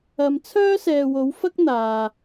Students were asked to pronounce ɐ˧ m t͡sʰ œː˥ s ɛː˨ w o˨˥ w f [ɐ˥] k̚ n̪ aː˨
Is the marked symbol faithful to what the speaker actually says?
yes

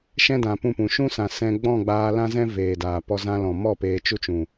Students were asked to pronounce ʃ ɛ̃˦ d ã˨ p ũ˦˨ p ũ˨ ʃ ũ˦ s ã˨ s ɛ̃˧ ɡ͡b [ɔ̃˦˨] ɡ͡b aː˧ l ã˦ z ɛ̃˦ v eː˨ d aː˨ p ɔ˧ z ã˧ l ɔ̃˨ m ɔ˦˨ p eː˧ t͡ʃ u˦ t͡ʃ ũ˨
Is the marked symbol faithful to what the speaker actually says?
yes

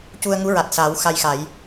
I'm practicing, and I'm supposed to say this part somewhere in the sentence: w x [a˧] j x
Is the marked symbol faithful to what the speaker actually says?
yes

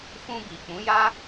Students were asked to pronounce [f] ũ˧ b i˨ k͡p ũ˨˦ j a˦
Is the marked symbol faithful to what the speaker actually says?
yes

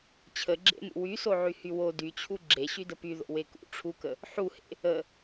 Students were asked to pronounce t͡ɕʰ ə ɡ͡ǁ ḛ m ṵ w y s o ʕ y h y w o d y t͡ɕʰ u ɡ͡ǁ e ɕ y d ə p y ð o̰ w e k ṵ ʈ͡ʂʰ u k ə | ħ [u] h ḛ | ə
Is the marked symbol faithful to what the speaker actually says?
yes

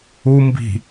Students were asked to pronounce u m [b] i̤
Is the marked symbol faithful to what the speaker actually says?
yes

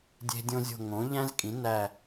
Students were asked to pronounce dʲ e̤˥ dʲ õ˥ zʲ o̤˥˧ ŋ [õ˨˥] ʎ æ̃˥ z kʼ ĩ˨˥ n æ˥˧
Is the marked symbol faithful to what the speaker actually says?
yes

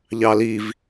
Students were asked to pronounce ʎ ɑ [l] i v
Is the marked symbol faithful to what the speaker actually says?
yes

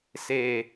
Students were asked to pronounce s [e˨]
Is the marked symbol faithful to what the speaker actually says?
yes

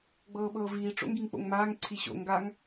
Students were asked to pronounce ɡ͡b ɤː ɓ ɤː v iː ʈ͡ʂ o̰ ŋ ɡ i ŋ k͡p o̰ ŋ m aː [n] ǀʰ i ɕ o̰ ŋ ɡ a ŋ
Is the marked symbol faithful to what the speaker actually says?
no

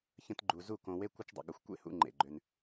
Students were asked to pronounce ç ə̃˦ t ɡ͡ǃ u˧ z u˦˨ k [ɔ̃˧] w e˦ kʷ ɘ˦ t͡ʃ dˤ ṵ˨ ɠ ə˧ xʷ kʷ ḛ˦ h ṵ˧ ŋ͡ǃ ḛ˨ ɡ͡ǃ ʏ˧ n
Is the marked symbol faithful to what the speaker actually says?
no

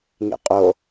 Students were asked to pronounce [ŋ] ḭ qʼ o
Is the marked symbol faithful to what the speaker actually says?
yes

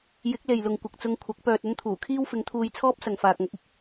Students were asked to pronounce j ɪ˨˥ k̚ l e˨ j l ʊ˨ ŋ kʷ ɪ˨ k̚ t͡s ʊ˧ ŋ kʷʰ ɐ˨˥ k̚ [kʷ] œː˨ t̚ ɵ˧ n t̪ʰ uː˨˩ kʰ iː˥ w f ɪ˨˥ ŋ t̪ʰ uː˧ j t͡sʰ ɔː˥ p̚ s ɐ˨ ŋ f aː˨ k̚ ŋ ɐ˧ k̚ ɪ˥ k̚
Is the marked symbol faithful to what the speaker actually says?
no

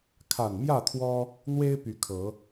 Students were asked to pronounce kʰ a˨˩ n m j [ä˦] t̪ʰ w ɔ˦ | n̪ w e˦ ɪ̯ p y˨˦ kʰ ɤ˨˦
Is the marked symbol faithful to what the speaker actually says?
no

